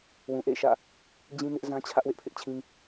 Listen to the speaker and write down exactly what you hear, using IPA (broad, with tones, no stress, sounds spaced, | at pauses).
w ũ˨ ʔ ḛ˦˨ ɪ̯ ʃ ä̰˦˨ | d͡ʑ ĩ˦ n ɪ˦ ʔ z ã˦ t͡ɕʰ ä˦ ʔ w ɪ˦ ʔ pʰ ɪ˦ ʔ t͡ɕʰ ĩ˦